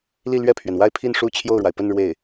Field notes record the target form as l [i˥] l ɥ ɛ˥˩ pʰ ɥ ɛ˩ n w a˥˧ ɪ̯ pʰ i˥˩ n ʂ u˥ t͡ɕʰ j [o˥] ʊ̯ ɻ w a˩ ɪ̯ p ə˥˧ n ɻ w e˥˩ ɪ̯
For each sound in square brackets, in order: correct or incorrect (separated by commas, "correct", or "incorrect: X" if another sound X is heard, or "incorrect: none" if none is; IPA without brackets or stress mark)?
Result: incorrect: i˥˧, incorrect: o˥˩